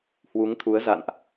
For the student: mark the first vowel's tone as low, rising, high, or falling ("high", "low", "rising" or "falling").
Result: rising